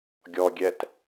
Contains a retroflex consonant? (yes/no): no